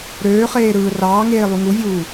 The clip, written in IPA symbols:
ɾ øː χ eː ɾ ɯː r ɑː ŋ eː lˠ y ŋ u vʲ uː

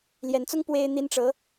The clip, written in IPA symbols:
l j ɛ˧˥ n t͡s ʊ˥ ŋ p w e˥ ɪ̯ n̪ i˥ n ʈ͡ʂ ɤ˧˥

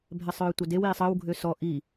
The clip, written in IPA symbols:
bʱ ɛ sˤ œː tʷ œ d e w iː sˤ əː w ɡʱ ø s ɔ ʔ i

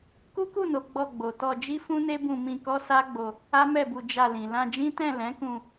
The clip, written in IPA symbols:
k u˦ k u˦˨ n o˨ ɡ͡b ɔ˧ ɡ͡b o˨ t ɔ˧ d͡ʒ i˦ f ũ˦ n e˦ b ũ˧ m ĩ˧ k ɔ˦ s a˦ ɡ͡b o˧ | a˦ m ɛ˦˨ b u˧ d͡ʒ a˧ l ĩ˨ l ã˧ d͡ʒ ĩ˦ t ɛ̃˦˨ l ɛ̃˨˦ k ũ˧

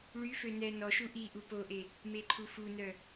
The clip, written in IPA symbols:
ɭ y f ø n ɛ n ɔ ʃ u ʔ i ʔ u p o ʔ e | m e ǃʰ u f u n œ

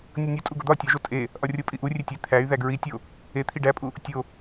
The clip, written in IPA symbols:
nʲ o nʲ u tʼ u ɡ o d̪ ɒ tʲ ɒ ʒ o tʼ e | ʔ ɒ rʲ o pʼ i ʔ u rʲ e tʲ e t̪ʰ æ y̯ ð æ ɡ ɹ i tʲ o | e t̪ʰ i ɖ æ pʼ u | tʲ o

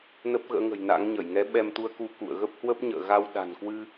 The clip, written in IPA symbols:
n ə˦˥ p̚ ɣ ə̰ː˧˥ ŋ ə̤˨˩ j n a̰˧˥ ŋ ɲ ə˧˩ j ŋ ɛ˨˦ ɓ ɛ˧ m t̪ u˧ ə̯ k u˧ k ṵ˧˨ ə̯ ɣ ə˦˥ p̚ h w ə˦˥ p̚ ɲ ə̰ː˧˨ ɣ a˧ w ɗ a̤˨˩ n k w ɨ˧

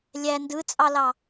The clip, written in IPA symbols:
lʲ æ n d ɯ t͡sʼ ɑ l ɑ

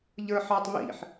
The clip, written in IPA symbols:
ʎ ə˞ ħ ɑ tˤ β ḭ ħ

